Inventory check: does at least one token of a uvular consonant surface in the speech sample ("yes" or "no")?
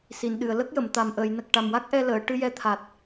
no